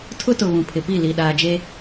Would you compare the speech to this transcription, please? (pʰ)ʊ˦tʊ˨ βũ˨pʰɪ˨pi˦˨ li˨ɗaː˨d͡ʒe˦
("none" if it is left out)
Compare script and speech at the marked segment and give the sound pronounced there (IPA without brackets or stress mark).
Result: tʰ